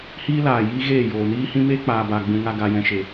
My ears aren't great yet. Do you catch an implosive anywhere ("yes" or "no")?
no